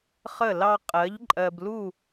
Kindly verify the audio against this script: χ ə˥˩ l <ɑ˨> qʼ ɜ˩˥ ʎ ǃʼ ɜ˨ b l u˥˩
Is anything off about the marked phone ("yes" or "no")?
yes